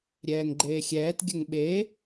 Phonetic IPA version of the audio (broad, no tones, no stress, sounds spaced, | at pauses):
ɾʲ ɛː ŋ ɡ͡ǃ eː xʲ ɛː t ɡʲ ə ŋ ɓ e